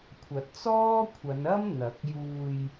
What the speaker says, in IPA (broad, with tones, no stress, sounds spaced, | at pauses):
kʷʰ ɐ˨˥ t̚ t͡s ɔː˥ kʷʰ ɐ˨˧ n ɐ˥ m n̪ ɐ˨˥ k̚ j uː˧ j